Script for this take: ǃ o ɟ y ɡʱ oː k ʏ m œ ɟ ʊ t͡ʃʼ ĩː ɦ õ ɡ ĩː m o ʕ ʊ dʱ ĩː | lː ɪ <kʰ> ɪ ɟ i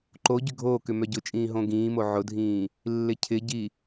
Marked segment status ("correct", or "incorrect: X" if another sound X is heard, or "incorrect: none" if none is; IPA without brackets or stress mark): incorrect: cʰ